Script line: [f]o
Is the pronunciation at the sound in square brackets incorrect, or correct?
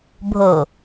incorrect